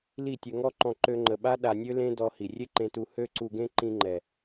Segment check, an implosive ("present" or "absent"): present